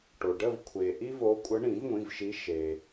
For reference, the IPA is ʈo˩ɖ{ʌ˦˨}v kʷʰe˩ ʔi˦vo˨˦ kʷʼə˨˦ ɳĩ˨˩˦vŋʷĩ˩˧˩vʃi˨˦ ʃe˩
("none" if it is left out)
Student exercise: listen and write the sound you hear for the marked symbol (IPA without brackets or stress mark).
ə˦˨